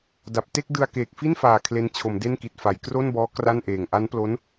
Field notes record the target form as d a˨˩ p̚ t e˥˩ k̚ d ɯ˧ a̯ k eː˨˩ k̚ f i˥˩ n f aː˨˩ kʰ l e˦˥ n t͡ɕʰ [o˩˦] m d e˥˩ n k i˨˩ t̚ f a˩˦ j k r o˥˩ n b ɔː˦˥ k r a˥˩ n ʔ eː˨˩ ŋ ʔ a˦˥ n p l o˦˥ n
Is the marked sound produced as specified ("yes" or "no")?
yes